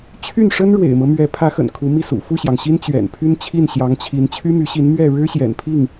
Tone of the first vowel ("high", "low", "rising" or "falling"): falling